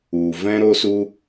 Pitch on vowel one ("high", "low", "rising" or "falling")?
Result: low